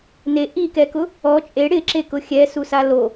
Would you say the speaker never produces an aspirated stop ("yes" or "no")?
yes